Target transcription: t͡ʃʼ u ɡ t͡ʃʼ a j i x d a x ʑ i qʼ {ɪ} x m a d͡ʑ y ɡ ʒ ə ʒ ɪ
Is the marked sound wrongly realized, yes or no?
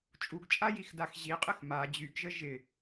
no